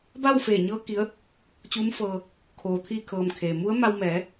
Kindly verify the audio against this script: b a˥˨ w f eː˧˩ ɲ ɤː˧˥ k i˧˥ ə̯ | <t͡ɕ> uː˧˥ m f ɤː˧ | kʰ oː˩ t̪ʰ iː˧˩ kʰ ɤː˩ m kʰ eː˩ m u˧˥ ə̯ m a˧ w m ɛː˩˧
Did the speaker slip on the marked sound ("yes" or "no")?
no